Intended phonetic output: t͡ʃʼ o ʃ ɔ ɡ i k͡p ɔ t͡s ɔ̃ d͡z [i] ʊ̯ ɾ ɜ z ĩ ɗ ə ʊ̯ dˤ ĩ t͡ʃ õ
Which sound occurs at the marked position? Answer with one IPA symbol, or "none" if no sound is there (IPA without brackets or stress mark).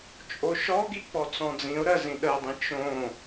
ĩ